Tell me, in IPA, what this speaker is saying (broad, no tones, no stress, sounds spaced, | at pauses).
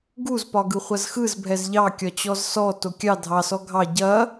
ɡ u z p ɒ ɡ ɯ χʷ ɐ z x ɯ z bʱ ɛ z ʎ ɑ kʲ ɒ t͡ɕ ɔ z s ɔ t o kʲ ɑ dʱ ɑ s ɔ ɡʱ ɑ ɟ ɐ